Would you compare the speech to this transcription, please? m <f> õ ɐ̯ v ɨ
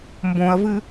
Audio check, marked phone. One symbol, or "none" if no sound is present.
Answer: b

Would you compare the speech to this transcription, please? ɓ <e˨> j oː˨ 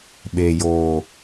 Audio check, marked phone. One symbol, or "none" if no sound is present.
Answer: e˨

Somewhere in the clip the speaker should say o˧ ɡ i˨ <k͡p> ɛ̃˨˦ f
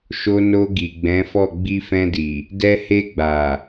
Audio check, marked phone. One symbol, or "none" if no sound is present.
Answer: ɡ͡b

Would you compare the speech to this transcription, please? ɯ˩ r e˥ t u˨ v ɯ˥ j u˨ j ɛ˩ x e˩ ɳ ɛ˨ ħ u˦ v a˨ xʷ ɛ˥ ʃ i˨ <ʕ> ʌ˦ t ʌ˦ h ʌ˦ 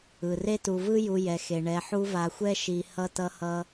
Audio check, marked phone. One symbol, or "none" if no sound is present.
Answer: h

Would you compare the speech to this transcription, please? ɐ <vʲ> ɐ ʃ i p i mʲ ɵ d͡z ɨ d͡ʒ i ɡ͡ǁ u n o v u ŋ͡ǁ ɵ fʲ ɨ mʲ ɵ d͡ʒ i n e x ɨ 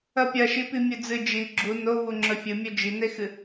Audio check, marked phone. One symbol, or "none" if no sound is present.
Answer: pʲ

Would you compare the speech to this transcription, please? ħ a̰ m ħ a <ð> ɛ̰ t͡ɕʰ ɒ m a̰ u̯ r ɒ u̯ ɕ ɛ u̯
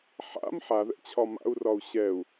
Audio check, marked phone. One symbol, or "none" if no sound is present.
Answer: ð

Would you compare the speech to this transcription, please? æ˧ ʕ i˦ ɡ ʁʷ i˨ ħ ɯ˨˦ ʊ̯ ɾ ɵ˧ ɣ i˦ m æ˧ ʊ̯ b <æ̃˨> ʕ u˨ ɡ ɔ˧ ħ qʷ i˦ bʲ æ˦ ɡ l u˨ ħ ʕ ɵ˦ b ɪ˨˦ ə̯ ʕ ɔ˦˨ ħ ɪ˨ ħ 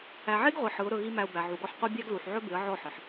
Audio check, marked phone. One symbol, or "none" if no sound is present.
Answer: æ˨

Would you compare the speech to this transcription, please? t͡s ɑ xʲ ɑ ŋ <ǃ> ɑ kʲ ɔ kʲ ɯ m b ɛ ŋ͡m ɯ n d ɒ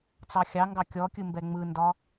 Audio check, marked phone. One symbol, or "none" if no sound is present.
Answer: ɡ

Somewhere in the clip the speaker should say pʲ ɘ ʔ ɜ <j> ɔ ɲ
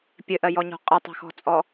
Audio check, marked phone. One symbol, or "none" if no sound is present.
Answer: j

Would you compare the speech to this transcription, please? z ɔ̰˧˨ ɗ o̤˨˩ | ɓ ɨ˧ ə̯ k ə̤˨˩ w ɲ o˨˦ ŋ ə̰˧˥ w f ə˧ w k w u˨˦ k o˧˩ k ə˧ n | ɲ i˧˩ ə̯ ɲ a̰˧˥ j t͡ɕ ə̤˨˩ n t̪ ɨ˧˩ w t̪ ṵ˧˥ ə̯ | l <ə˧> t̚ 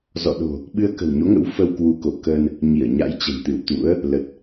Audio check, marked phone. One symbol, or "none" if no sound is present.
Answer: ə˨˩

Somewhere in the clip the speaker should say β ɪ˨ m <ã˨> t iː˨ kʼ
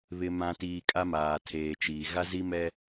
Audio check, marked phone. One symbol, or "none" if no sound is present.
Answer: ã˨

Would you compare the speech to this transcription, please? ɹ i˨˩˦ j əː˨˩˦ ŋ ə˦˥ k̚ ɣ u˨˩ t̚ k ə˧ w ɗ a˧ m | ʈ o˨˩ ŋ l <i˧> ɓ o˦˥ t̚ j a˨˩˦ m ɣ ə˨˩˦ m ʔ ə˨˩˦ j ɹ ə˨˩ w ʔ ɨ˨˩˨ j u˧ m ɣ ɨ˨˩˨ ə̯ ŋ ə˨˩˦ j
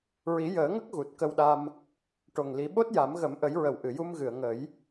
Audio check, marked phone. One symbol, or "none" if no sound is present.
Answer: i˨˩˦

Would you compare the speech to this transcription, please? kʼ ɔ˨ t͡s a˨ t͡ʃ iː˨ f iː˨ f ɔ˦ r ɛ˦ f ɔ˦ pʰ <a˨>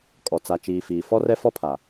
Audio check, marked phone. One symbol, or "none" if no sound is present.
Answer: a˨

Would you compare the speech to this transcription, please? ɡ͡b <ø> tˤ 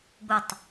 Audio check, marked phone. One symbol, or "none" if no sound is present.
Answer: u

